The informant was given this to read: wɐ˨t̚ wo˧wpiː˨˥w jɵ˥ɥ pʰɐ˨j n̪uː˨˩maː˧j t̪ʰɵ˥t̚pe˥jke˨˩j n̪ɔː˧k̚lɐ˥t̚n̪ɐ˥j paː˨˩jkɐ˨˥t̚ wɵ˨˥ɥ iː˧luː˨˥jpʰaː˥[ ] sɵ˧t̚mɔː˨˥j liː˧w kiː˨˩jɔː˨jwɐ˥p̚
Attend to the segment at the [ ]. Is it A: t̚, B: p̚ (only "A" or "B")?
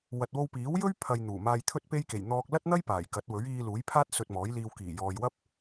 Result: A